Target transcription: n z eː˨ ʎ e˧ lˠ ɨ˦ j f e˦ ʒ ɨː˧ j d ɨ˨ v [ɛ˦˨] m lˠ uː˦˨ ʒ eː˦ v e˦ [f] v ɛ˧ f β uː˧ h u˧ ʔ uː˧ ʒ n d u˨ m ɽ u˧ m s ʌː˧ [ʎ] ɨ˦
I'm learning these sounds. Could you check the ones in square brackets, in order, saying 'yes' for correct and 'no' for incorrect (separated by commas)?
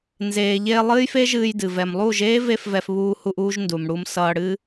no, yes, no